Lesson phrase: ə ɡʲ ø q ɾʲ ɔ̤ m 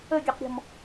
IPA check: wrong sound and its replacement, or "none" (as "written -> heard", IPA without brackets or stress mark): none